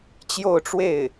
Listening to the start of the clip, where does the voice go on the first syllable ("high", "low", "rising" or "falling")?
falling